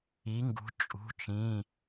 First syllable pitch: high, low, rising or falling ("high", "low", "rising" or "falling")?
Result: rising